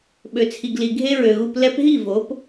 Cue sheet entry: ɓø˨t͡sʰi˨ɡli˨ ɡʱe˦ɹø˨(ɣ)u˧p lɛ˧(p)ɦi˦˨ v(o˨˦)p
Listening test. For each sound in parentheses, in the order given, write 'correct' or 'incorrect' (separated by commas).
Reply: correct, correct, correct